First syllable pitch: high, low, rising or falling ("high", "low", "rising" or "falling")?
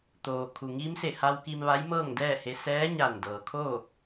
low